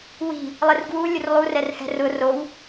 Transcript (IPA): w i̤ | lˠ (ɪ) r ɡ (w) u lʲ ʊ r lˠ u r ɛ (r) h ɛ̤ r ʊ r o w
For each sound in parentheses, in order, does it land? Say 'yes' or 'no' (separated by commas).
yes, yes, yes